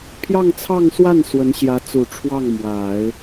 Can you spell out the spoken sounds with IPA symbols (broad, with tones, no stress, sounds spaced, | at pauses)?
pʰ j ɑ˥˧ ŋ t͡sʰ ɑ˥˧ ŋ s w a˥˩ n s w ə˧˥ n ɕ j ä˧˥ t͡s u˨˩ ʈ͡ʂʰ w ɑ˥˩ ŋ m w a˨˩˦ ɪ̯